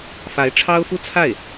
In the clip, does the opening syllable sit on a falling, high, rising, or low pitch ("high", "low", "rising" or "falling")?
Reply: rising